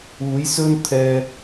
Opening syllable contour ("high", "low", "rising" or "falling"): rising